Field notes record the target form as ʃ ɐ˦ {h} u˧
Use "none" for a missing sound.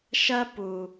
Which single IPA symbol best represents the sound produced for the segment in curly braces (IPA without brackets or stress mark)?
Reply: p